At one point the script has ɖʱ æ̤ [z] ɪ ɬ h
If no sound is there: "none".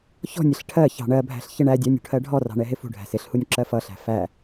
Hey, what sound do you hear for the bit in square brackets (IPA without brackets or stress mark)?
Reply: s